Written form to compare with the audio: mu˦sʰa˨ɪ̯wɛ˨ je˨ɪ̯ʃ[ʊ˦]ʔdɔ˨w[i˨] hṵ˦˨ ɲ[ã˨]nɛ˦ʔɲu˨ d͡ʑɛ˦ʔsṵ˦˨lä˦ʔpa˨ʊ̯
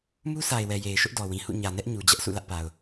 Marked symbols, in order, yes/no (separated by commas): yes, no, no